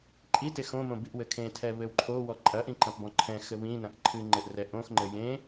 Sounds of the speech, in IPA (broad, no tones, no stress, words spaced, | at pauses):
ǃʼitex õmõ biʔwɘkʰẽtʰɛ βɘwǃʰowɔ ǃʼɐʔĩ ǃɐ̃pbɔ̃ǃʰɛ̃xɘ βĩnɐ̃ʔ ǃʰɨŋ͡ǃɘʔ rɛʔõxŋ͡ǃɘ jẽ